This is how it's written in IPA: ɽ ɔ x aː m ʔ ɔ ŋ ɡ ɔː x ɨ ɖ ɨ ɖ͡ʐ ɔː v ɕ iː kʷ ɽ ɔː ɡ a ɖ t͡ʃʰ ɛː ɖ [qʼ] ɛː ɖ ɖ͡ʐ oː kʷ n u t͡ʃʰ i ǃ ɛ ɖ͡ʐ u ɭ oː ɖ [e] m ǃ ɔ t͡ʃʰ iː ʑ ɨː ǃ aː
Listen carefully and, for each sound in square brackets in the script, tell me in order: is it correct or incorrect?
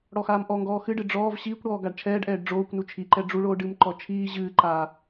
incorrect, incorrect

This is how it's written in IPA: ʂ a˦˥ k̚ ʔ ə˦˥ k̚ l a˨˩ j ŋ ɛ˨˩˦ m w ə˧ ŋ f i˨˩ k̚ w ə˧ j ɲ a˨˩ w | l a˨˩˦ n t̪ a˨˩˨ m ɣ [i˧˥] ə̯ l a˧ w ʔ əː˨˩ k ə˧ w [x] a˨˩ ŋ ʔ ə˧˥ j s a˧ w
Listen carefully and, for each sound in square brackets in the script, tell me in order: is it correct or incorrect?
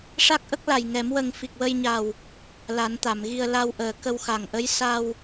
incorrect, correct

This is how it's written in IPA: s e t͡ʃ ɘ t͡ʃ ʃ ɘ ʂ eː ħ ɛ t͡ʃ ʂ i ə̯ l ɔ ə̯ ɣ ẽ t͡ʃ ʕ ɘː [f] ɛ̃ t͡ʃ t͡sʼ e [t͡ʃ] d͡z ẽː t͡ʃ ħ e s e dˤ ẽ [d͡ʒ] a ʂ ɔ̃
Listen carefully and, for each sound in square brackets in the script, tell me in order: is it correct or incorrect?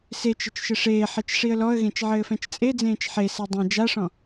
correct, incorrect, correct

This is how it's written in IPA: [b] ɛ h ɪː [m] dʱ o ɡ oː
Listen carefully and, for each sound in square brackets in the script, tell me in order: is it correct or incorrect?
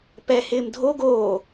incorrect, correct

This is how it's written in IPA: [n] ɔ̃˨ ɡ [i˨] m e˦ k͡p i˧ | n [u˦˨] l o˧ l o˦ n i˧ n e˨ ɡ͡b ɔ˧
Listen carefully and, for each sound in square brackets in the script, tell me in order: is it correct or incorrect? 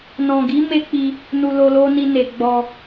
correct, incorrect, incorrect

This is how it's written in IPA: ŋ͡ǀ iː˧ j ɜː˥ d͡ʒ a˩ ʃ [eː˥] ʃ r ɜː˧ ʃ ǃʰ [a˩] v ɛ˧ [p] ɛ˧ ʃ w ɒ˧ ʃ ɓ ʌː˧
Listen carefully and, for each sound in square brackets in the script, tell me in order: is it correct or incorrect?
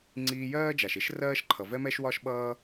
incorrect, incorrect, incorrect

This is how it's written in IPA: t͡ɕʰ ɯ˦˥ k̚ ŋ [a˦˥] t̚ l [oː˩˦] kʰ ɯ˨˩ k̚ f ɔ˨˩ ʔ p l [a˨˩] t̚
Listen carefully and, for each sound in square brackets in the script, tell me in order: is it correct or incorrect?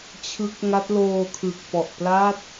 correct, incorrect, incorrect

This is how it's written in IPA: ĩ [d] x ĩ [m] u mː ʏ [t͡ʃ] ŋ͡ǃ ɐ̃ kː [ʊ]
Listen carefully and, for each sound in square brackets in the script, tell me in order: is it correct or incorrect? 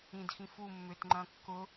correct, incorrect, incorrect, correct

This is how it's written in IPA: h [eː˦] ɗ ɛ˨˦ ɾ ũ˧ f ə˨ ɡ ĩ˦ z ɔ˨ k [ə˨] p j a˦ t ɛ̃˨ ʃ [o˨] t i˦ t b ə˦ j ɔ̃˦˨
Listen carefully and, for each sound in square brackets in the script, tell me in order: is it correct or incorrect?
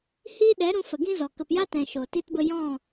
incorrect, correct, correct

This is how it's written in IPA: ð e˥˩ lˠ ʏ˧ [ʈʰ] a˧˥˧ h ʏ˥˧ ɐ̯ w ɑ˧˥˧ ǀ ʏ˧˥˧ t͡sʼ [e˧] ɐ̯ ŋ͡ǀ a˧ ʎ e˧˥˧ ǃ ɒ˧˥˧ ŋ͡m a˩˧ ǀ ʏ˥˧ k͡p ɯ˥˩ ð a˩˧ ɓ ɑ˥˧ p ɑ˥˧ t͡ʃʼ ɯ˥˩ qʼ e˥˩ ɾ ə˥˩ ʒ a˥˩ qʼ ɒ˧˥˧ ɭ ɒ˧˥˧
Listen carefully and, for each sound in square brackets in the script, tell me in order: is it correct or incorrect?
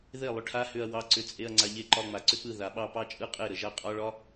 correct, incorrect

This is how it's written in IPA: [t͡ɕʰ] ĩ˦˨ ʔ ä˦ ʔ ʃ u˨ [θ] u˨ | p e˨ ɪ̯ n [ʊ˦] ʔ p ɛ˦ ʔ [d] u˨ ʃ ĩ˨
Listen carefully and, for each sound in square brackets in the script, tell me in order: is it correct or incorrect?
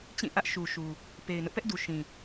incorrect, incorrect, correct, correct

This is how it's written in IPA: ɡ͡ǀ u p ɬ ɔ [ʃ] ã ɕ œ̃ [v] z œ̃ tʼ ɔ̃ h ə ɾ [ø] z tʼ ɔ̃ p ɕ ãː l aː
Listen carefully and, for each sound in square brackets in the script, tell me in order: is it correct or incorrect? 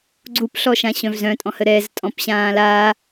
correct, correct, incorrect

